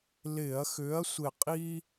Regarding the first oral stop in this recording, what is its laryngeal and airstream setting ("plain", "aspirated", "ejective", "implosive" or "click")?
ejective